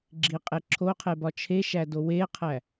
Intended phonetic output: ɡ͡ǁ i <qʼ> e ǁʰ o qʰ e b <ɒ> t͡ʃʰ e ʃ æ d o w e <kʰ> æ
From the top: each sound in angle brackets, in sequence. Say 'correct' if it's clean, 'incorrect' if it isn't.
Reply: correct, correct, incorrect

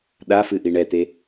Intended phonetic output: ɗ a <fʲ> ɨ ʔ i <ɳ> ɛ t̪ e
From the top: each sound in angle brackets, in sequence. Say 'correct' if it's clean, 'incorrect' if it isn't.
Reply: incorrect, correct

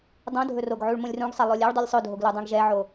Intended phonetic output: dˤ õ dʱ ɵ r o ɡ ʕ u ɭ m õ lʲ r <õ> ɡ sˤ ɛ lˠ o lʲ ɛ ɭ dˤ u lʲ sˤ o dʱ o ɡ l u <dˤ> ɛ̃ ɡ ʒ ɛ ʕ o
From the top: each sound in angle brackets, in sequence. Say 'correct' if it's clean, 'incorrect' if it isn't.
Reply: incorrect, correct

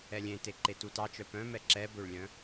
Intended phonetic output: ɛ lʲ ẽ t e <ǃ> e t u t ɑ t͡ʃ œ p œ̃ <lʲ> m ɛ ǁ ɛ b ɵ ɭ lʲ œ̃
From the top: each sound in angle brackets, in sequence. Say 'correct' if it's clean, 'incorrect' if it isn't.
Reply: correct, incorrect

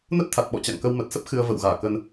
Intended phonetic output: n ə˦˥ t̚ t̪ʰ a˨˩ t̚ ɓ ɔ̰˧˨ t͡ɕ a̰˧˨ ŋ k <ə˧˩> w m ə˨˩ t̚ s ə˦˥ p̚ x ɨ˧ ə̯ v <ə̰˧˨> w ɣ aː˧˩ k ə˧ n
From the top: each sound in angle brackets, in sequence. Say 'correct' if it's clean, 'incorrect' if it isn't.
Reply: incorrect, correct

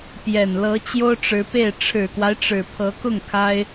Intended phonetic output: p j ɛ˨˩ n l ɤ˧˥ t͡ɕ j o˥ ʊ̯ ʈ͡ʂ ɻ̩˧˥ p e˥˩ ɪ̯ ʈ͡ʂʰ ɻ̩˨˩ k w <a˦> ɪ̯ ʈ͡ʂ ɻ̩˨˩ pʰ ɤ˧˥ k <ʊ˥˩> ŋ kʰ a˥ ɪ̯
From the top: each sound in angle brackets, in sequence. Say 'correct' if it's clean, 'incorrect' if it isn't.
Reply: correct, correct

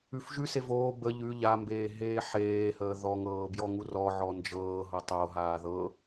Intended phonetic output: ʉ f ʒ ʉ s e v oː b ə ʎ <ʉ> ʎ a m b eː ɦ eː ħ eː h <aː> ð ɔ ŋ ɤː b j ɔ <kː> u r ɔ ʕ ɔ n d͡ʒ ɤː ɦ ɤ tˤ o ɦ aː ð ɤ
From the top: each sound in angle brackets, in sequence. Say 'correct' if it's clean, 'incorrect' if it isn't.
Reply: correct, incorrect, incorrect

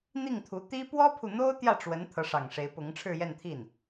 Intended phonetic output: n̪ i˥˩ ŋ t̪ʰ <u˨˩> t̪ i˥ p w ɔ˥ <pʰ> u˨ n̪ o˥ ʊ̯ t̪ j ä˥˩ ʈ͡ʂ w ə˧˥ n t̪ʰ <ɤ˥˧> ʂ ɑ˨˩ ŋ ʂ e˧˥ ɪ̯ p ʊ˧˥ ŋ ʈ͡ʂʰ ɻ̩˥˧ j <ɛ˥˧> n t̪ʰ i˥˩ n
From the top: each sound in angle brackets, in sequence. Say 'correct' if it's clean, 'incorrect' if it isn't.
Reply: incorrect, correct, incorrect, correct

